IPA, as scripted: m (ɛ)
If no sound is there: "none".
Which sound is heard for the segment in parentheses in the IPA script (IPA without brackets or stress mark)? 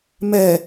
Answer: ɛ